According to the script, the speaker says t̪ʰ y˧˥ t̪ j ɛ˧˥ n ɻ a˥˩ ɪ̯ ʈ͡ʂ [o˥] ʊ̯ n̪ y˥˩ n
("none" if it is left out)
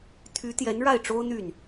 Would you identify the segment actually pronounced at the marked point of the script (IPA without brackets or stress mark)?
o˥